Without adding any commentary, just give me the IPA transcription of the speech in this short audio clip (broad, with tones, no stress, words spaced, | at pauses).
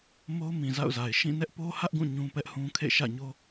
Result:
mo˦ʊ̯mĩ˨za̰˦˨ʊ̯za˨ɪ̯ ʃĩ˦˨ nɛ˦ʔpo˦hä˦ʔɡũ˦˨ ɲũ˦pɛ˦ʔhũ˦ kʰḛ˦˨ʃä̰˦˨ɲo˦